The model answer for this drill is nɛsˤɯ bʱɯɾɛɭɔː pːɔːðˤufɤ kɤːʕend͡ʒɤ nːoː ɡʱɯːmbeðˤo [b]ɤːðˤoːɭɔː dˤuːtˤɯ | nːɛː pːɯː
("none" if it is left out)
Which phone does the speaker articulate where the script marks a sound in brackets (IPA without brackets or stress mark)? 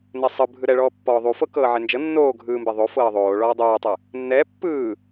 f